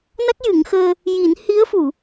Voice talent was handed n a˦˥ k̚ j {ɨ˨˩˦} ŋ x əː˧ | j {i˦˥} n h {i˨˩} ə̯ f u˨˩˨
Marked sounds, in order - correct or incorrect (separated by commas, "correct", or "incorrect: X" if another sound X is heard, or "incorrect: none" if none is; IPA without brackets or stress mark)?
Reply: correct, incorrect: i˨˩˦, incorrect: i˧˥